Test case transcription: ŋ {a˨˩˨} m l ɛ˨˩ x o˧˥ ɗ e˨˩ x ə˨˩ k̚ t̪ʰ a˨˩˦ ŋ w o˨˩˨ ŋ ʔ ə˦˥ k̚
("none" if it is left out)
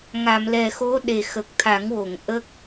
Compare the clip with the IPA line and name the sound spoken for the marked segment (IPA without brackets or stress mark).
a˨˩˨